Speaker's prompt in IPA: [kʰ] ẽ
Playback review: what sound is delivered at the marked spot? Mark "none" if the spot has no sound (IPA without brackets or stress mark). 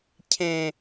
cʰ